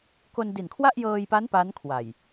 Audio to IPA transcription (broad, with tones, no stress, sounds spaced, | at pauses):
k o˧ n d i˨˩ n kʰ w a˥˩ ʔ j ɤː˧ j p a˦˥ n p a˦˥ n kʰ w a˨˩ j